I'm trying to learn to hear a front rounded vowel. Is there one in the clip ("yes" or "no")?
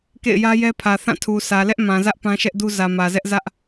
no